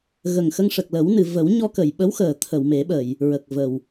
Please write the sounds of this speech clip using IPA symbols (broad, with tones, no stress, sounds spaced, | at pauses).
ɣ ə˨˩ ŋ x ə˧ ŋ ʂ ə˨˩ k̚ l ə˨˩˦ w n ɨ˨˩˨ v ə˨˩˦ w ɲ ɔ˧ k ə˨˩˨ j ɓ ə˧˥ w x əː˨˩˨ t̪ʰ ə˨˩˨ w m e˨˩˦ ɓ ə˨˩˨ j | ɹ ə˨˩ k̚ v ə˨˩˨ w